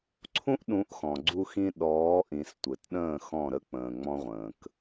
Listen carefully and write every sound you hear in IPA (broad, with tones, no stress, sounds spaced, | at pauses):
ǀʰ ũ˦ ʔ ɗ ũ˨˦ ʔ x ɔ̃˨ ɡ͡ǀ u˧ x ĩ˧ ɗ ɔː˨˦ ʔ ĩ˨ s tʷ ɘ˨ t ɗ ə̃ː˦˨ x ɔ̃˦˨ ɾ ə˦ k͡p ə̃ː˨ ŋ͡m ɔ̃˦ ʁʷ ə̃ː˨ k